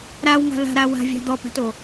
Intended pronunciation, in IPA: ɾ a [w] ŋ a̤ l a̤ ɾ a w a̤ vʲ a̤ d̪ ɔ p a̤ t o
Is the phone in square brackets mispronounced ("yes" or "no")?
no